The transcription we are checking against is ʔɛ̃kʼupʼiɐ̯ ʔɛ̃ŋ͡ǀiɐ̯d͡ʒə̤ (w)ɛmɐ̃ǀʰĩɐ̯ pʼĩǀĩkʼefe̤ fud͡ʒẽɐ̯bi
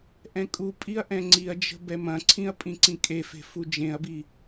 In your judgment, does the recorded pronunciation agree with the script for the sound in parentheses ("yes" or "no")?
no